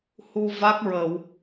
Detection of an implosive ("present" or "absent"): absent